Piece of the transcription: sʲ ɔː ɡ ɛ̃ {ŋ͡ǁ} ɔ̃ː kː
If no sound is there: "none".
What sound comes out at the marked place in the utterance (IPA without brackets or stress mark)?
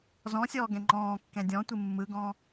ŋ͡ǃ